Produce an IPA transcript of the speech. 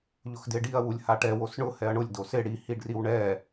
ʎʊxdɪɖiɐ̯ wulʲhaʈɛw osɳʊ hɛɐ̯ɳʊlʲ dosɪ ɽi hiɖriwɳɛ

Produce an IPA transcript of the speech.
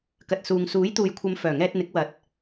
kɐ˨t̚suː˨ŋ suː˨˥jt̪uː˨jkʷʰɐ˨˧m fœː˨˩ŋɛː˧t̚n̪ɪ˨˥k̚ wɐ˨˥t̚

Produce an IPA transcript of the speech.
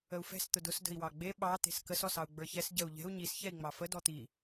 əu̯fɛ̤s t̪ʊdʊs də̤i̯wɑɡ͡be ɓɑ t̪e̤skəs ɔsɑu̯ɡ͡bə˞çɛs ɟəu̯ ʎɛ̤u̯ ɲis çɛi̯ŋ͡mɑfə dɔt̪i

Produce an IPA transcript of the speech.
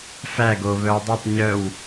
fæɡ o βœwdˤɤtˤ ɲœw

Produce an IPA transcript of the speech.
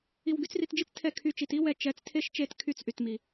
i˧w ɡy˩˥t͡sri˧td͡ʒi˥t͡s tʰɛ˥˩kʰy˥˩t͡ʃi˧t i˥wɛ˩˥t͡ʃɛ˩˥t͡s tʰe˥ʃt͡ʃe˥˩tkʰy˥˩t͡s ʔy˩tmi˩

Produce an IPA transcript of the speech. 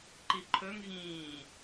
ǃiǃʰɵŋ ɣĩː

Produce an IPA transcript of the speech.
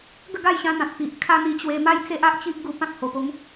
ɡə˥˧ɡa˥˧jɕã˧n̪ã˨t̚ pi˨ʔ kʰa˦n̪i˧t͡ɕwe˧ ma˦jt͡se˦ʔa˦ʔt͡ɕi˦ʔ ɡu˧pã˦k̚ ho˨˩po˨˦ŋ

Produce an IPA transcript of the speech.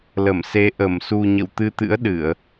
lə˧˩m se˨˦ ʔə˧˩msu˧ ɲə̰˧˨wt̪ɨ˧t̪ɨ̰˧˥ə̯ ɗɨ˧˩˨ə̯

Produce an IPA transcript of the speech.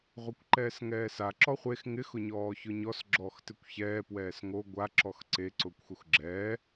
ʁʷɛkʷǃɛːsŋɛːsa ǁɔχʷex ŋɪx ʊɲɔːçʊɲɔs ɡ͡ǁɔːxtɪkʷçɛː pwɛːsŋo ɡʷa ǁɔxǀe ǀʊːkʷxuxɡ͡ǁɛː

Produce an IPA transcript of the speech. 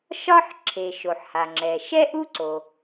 ʃɒ˥ħ ǁʰe˩ ʃo˩ħha˩ŋ͡ǁɛ˩ ʃɛ˥ʔu˥ǀo˩

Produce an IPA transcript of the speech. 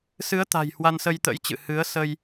sɨ˨˦ə̯t̪a̤˨˩j hwa˧nsə˧jt̪ə̰˧˥jt͡ɕɨ̰˧˨ hɨ˨˦ə̯sə˧j

